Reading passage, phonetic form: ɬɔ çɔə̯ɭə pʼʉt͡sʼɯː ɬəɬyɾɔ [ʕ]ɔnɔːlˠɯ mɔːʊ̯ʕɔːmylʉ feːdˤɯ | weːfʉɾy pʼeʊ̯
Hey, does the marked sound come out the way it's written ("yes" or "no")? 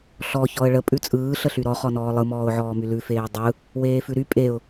no